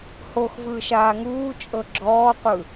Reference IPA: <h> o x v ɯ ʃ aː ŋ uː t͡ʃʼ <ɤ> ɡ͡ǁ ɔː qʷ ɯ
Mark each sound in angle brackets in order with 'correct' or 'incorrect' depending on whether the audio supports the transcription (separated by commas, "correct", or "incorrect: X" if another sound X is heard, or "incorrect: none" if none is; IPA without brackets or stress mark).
correct, correct